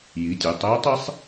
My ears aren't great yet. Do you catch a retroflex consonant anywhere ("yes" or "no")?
no